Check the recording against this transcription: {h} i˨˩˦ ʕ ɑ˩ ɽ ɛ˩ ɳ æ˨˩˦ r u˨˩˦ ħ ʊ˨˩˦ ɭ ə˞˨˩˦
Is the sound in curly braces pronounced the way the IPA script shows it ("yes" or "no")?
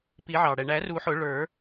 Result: no